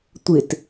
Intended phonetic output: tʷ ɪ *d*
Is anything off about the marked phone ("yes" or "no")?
yes